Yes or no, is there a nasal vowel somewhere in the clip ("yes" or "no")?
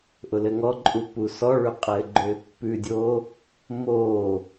no